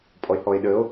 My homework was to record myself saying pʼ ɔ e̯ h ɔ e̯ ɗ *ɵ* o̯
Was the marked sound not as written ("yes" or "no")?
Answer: yes